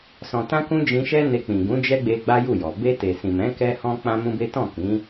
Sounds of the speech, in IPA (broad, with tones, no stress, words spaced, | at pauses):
sɔ̃˨tã˧kũ˧ d͡ʒĩ˧ʃɛ˦ne˧ k͡pĩ˨ɡũ˨˦ d͡ʒɛ˦ɡ͡be˧ ɡ͡ba˦ju˦˨jɔ˨ be˧te˨sĩ˨mɛ̃˨˦ kɛ˦ hɔ̃˦ k͡pã˦mũ˦be˦ tɔ̃˦˨kĩ˨˦